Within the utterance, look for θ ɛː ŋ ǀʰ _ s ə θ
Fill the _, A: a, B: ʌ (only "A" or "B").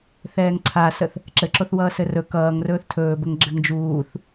A